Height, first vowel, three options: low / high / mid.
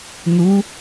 high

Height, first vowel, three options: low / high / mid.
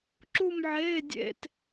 high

